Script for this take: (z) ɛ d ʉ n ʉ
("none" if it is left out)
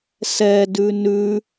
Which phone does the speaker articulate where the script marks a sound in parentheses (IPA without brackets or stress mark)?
s